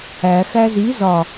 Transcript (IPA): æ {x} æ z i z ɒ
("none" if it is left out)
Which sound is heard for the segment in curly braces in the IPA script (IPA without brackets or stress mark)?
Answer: x